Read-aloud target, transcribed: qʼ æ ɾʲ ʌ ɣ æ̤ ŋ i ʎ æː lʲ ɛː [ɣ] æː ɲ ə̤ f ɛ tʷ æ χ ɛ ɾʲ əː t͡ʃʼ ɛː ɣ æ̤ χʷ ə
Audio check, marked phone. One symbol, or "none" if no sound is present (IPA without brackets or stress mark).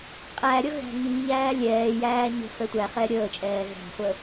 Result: j